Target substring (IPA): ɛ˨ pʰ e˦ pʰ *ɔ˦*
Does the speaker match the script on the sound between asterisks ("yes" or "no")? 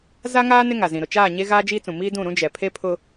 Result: no